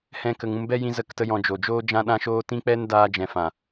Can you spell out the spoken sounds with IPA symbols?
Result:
h ɛ̃˦ k ə˧ ŋ ũ˧ m b ɛ˦ j ĩ˧ z ə˦˨ k t ə˦ j ɔ̃˧ d͡ʒ o˨ d͡ʒ oː˦ d͡ʒ ã˦ ɗ ã˦ ʃ oː˦ t ĩ˦ k͡p ɛ˦ n d aː˧ d͡ʒ ɛ̃˨ f ã˨

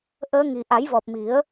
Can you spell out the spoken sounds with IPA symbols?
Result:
ʔ əː˧˥ ŋ i˨˩ ʔ a˨˩˦ j v ɔ˨˩ p̚ m i˨˩˦ ə̯

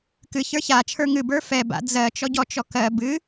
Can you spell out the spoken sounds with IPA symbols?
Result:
k ɨ ç ə˞ ç a t͡ʃʰ ə˞ ŋ ɨ b ə˞ f ɛ b a̰ d͡z ɜ t͡ʃ ɔ ɟ ɔ t͡ʃ ɔ k ɜ b ɨ

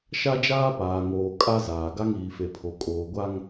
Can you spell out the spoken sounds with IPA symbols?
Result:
ʃ a˦ d͡ʒ aː˦ p aː˨ ŋ oː˨ kʼ a˦ z aː˨ ɡ a˦ ŋ iː˨ f e˨ pʰ o˨ kʼ oː˨ ɡʷ a˦ ŋ

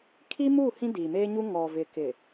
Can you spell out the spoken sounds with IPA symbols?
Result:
kʰ i˦ m u˦˨ h ĩ˦ d iː˨ m eː˦ ɲ u˦ ŋ ɔ˨ v ɪ˨ k ɪ˨

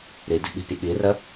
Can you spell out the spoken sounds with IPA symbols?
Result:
ɾ i d i̤ ɓ i̤ pʲ ə ɠ i r ə

